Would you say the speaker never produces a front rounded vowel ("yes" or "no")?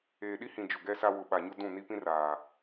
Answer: yes